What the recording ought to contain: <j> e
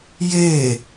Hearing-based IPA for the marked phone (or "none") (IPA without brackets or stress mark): j